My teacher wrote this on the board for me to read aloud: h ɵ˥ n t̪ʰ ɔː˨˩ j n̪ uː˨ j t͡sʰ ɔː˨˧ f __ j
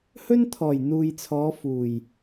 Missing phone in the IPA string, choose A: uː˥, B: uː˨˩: B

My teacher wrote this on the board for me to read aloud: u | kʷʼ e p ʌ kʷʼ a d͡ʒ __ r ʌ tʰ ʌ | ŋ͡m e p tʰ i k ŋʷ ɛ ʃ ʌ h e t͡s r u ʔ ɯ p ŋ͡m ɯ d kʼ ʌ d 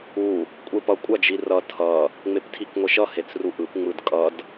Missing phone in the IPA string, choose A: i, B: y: A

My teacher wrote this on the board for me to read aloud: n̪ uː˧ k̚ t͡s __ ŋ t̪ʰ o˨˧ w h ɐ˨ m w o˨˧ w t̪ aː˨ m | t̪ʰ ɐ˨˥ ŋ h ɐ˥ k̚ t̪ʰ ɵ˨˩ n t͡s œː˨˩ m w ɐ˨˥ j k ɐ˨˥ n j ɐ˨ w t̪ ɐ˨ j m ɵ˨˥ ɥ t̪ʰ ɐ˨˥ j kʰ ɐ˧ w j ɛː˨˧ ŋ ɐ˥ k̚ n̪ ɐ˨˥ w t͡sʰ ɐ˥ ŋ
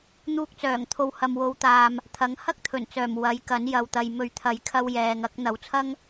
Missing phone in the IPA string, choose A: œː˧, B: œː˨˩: B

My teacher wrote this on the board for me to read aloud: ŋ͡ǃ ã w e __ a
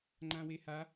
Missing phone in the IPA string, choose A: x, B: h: B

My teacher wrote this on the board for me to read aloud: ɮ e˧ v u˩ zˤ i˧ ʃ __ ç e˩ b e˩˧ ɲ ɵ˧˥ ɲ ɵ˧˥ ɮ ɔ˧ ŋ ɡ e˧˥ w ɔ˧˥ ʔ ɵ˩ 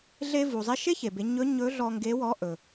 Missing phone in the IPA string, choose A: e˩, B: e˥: B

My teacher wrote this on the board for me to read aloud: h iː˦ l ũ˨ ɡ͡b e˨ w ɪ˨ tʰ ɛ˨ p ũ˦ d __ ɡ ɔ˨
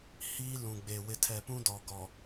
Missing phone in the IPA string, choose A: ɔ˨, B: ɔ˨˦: A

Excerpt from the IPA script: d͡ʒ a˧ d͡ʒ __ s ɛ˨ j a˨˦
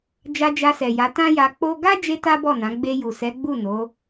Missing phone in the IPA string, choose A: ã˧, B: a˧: B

